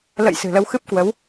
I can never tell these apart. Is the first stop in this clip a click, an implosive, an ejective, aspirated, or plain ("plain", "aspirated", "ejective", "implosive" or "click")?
plain